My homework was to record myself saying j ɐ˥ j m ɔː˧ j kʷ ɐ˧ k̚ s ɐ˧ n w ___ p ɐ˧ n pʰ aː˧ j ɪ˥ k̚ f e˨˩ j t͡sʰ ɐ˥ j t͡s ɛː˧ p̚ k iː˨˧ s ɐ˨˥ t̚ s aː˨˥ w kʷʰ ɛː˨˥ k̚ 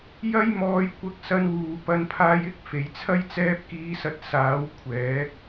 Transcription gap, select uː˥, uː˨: uː˨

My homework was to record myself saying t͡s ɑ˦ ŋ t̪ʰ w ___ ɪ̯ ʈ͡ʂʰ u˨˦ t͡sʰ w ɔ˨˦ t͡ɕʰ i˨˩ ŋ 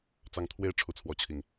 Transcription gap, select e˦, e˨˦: e˦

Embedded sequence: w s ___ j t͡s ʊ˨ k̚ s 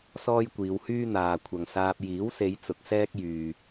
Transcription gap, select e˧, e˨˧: e˨˧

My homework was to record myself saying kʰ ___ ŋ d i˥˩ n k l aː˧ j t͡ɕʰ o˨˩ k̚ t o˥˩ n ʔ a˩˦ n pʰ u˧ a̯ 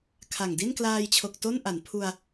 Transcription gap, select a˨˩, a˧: a˨˩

